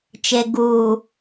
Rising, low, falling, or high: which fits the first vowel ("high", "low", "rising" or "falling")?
low